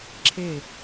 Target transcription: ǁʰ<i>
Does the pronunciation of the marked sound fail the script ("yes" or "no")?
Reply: yes